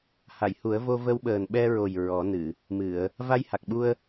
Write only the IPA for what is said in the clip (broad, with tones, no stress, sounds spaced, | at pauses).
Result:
h a˨˩˨ j h u˨˩˦ ə̯ v o˧ v ə˧ w ɓ əː˨˩ n ɓ ɛ˧ ɹ o˨˩ j ɹ ɔ˨˩˦ n ɨ˨˩˨ | m ɨ˨˩˨ ə̯ | v a˧ j h a˨˩ k̚ ɓ u˧ ə̯